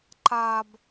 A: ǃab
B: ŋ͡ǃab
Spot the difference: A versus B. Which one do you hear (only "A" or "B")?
A